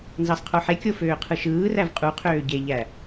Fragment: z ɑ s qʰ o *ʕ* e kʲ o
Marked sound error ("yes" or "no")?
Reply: yes